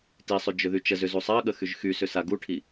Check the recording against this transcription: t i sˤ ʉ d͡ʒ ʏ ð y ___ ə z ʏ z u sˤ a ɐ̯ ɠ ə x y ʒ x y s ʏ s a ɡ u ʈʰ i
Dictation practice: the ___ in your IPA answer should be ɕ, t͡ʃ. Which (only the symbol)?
t͡ʃ